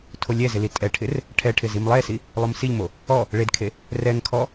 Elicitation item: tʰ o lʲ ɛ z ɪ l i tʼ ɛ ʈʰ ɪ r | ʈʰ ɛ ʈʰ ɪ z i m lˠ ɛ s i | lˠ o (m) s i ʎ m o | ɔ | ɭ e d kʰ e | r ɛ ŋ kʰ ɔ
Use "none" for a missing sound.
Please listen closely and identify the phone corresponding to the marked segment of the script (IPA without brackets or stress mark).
m